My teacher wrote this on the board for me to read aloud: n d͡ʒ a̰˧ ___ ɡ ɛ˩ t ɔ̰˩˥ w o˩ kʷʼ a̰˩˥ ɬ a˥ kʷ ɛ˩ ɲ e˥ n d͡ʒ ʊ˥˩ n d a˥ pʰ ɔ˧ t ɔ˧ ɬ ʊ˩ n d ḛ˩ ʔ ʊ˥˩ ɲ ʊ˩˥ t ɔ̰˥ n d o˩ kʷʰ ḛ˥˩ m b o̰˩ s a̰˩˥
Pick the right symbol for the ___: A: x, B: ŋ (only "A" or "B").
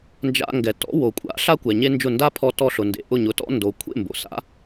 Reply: B